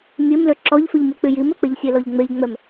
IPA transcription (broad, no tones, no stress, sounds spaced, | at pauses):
mʲ e m l ø ǁ ɔ ʎ f y ʎ m y k͡p y j i m ø k͡p e ʎ sʲ e l ɔ ʎ ŋ͡m e ʎ ŋ͡m ɛ m